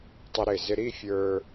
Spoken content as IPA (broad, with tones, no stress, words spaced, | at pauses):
tˤə˧ɾɪ˧˩ zɪ˧ɾi˥˧fʲə˞˧